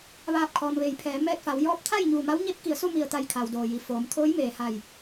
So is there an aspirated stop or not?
yes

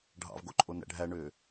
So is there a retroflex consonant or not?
yes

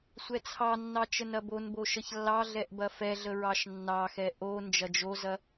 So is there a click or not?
no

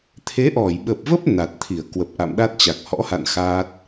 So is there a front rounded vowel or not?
no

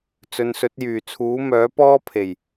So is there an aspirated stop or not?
yes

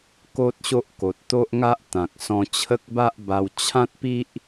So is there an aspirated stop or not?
yes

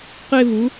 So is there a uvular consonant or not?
yes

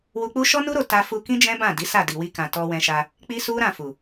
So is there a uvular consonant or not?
no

